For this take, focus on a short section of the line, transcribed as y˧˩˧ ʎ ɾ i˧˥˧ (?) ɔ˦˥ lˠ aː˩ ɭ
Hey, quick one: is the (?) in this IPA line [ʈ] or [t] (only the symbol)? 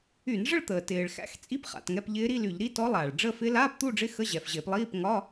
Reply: t